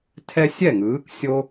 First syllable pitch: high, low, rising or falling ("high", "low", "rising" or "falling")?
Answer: high